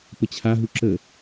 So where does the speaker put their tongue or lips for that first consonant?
lips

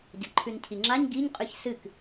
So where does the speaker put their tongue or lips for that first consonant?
palate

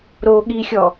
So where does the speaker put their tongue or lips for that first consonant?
tongue tip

